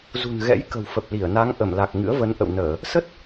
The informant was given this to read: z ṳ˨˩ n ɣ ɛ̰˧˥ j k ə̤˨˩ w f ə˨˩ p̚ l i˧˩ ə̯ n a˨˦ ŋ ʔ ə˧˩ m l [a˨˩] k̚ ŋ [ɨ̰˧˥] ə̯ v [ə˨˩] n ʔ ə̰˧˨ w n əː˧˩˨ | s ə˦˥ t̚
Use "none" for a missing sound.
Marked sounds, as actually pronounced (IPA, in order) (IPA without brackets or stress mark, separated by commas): a˨˩, ɨ̰˧˥, ə˨˦